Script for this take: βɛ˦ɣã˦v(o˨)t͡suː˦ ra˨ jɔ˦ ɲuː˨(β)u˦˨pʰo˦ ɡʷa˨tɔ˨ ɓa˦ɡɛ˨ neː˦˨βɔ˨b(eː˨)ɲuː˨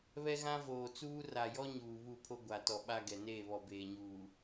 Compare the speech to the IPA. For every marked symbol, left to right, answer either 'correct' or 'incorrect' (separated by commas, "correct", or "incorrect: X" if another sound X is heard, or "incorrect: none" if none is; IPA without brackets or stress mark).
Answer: incorrect: oː˨, correct, correct